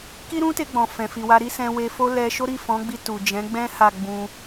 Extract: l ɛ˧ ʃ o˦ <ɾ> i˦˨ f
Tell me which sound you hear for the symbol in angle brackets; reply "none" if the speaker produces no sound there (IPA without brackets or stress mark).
ɾ